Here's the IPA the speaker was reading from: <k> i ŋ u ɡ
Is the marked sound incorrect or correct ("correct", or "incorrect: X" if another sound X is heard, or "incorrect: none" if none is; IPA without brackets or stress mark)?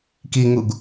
correct